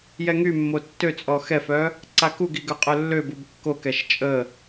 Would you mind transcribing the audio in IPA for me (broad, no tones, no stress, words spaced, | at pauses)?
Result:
jɛŋymːo tːøt͡sʼɔ xɛfœ | ǀakuɡi ɡœqʼœlːøbub kːokɛʃ t͡ʃʼə